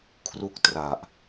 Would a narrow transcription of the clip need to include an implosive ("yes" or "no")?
no